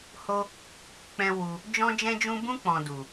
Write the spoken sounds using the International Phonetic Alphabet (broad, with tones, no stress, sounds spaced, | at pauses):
h o˦ | k͡p ɛ̃˦ w u˧ | d͡ʒ ɔ̃˦ d͡ʒ ɛ̃˦ d͡ʒ ũ˦ b ũ˦ k͡p ɔ̃˨ d u˨